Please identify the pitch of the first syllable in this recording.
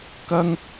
high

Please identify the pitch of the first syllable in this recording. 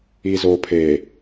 low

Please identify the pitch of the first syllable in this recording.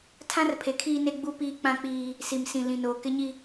high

